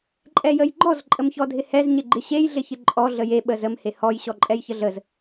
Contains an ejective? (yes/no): yes